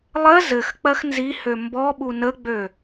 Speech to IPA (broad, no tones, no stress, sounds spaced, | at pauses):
lˠ ɜ z ɘ x k͡p ɜ x n z i h ø m b ɔ ɓ u n ə ɡ͡b ø